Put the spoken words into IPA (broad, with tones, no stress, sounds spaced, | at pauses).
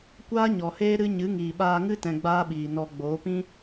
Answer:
kʷ aː˦ ɲ ɔ˨ h eː˦ ɾ ɨ˦ ɲ ɨ˨˦ ŋ iː˨ ɓ aː˧ ŋ ɨ˦ t ɛ̃˧ ɡ͡b aː˦ ɓ iː˨ n ɔ˧ ɡ͡b oː˨˦ p ĩ˦